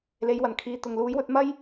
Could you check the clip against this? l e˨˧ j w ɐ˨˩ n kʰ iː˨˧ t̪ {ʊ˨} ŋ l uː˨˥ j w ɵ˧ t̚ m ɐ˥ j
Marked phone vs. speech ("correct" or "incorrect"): correct